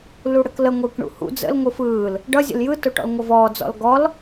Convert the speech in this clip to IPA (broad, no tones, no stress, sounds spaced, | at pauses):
l u ɽ ə k l ə ŋʷ ɯː k ɳ ṵ h ṵ d͡z ə̰ l ŋʷ ɯ f ɯː l | ɖ ʌ zʲ ə̰ l j ɯ t o ʈ ɔ̰ l ŋʷ ʌ v ɔː d͡z ɔ̰ l ɡ ɔ l